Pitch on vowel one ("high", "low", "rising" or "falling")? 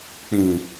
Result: low